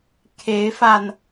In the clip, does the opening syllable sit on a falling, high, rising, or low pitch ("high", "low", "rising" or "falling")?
rising